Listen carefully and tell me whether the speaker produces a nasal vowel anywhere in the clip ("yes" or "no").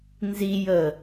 no